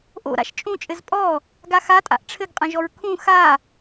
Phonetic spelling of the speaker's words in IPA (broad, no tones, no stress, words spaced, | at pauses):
ʔo̰ ɾa̰ʃt͡ʃʼũt͡ʃʼɘz pʼɔ | ɡaxatʼa̰ʔ ʈ͡ʂʰɘɡqʼɐ̃ʒɔɹ kʰũ xa